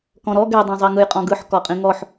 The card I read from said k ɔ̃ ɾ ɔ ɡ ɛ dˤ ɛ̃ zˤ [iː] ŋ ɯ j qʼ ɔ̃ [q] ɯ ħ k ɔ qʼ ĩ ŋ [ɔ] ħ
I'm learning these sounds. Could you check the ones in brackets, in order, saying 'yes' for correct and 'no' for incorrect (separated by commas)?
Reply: no, no, yes